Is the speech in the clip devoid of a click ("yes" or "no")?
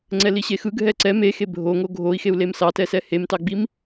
no